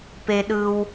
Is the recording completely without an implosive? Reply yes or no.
no